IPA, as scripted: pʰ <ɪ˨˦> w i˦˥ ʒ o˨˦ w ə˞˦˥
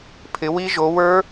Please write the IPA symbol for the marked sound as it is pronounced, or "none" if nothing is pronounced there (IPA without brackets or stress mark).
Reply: ɪ˨˦